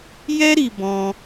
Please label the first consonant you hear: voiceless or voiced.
voiced